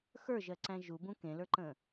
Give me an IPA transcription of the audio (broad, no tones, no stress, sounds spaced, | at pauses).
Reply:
x ə˞ ʒ ɜ ǀ æ̃ ʒ u b ũ k ẽ l ə˞ ǃ ə̃ː